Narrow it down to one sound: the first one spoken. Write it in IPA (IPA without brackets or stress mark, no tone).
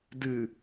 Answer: d